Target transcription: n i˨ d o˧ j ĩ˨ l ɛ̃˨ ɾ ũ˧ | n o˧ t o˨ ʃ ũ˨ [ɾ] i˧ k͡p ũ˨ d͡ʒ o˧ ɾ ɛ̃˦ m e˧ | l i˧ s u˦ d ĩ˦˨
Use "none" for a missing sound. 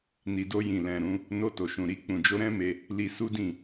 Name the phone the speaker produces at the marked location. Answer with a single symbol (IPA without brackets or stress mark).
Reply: ɾ